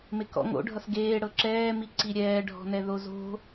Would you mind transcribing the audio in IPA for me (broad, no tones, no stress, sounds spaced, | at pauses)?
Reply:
m e k ɔ̰ ŋ o̰ ɖʱ ʌ s ɡ eː ɽ ɤ ǁ ɛː m i ǀ i ɾʲ ɛː ɖʱ ɔ̤ n ɛ ð o z o̤